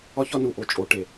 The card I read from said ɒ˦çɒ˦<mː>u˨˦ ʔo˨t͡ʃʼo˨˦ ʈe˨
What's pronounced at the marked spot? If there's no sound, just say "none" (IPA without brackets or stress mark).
n